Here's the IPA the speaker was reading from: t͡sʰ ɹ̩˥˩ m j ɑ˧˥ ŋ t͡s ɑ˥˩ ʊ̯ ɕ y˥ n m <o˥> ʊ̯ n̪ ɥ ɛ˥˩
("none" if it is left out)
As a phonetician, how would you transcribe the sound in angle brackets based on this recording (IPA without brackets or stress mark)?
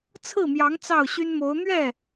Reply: o˧˥